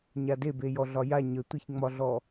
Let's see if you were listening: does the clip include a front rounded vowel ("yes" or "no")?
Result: no